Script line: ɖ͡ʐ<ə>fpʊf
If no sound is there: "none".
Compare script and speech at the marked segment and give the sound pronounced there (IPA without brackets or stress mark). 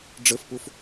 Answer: ə